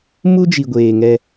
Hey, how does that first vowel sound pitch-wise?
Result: high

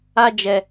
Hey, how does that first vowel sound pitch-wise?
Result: high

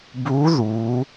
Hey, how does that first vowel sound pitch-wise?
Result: rising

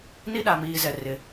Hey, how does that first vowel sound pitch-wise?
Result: high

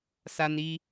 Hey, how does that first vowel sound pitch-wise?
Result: high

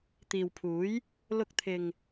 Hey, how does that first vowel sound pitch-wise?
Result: low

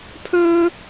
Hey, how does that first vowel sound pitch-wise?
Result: high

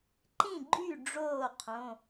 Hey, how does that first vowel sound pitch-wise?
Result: falling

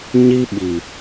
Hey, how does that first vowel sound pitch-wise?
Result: high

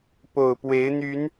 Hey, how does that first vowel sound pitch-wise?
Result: low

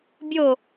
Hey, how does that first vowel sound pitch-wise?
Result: falling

